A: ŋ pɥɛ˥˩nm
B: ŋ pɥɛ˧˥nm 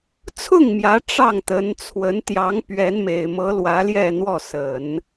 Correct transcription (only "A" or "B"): B